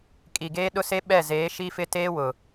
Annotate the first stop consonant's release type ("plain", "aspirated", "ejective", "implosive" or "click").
ejective